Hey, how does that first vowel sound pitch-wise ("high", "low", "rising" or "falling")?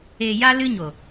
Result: low